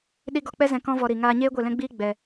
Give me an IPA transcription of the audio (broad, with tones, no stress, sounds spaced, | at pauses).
ɗ i˦ ɡ ɔ˧ k͡p ɛ˦ z ɛ̃˧ k ɔ̃˦ v ɔ˧ ɾ i˨ ŋ aː˧ ɲ eː˦ ɡʷ e˦˨ l ɛ̃˦ ɡ͡b iː˦ ɡ͡b ɛ˨